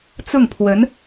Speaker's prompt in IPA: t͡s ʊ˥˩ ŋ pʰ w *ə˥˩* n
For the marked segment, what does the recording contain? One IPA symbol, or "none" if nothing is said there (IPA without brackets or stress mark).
ə˧˥